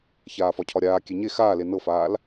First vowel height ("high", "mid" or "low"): low